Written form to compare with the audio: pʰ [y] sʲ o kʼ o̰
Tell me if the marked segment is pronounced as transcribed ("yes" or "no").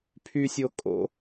yes